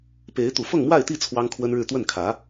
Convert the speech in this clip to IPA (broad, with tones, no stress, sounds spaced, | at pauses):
p e˧˥ ɪ̯ t̪ u˨˩ f ɤ˥˧ ŋ m w a˥˧ ɪ̯ t̪ i˥˩ t͡sʰ w ɑ˥ ŋ kʰ w ə˥ n ɻ ɻ̩˥˧ t̪ w ə˥˩ n kʰ ä˧˥